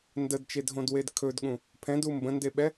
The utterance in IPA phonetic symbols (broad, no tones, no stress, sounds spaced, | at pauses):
n d ə d t͡ʃ e dʱ õ d w e d kʰ ɵ d ɠ ũ | pʰ ɛ̃ d u m b ə̃ n d e ɓ ɛ